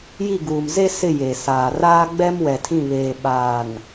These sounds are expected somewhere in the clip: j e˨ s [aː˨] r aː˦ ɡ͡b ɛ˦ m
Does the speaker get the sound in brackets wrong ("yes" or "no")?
no